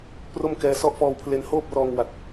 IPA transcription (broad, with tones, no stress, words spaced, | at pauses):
pro˥˩mkɛː˧sɔ˥˩ʔ fɔː˧wpʰle˧nhoː˥˩p̚rɔː˧ŋ wa˨˩t̚